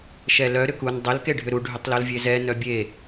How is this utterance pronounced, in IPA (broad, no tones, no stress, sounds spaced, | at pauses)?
ʃ ɛ l œ ɾ ʏ k u n dˤ ʏ l k e ɖʱ ʏ ɾ u ɖʱ ʏ tˤ l o l vʲ e z ɛ n œ bʲ e